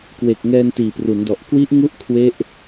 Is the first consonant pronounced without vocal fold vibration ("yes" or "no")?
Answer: yes